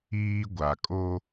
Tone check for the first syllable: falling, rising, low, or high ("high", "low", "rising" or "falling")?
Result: high